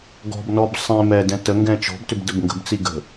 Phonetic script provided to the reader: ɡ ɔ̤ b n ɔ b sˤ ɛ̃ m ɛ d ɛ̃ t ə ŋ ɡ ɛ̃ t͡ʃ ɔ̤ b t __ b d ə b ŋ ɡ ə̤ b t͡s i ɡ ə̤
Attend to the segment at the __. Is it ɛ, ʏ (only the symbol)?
ʏ